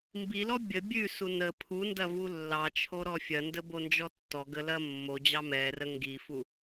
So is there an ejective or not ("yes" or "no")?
no